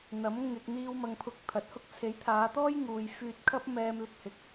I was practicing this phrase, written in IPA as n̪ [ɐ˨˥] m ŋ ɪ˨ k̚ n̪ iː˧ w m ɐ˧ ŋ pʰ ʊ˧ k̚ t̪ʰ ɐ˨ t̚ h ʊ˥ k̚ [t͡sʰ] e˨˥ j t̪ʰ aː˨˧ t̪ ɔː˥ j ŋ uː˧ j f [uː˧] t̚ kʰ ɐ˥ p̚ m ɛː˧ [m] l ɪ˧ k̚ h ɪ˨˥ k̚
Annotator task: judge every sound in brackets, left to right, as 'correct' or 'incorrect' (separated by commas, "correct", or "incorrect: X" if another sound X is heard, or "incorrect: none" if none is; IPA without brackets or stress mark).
correct, correct, incorrect: yː˧, correct